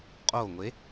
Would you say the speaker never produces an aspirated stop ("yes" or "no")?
yes